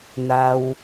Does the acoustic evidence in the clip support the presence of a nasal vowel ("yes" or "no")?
no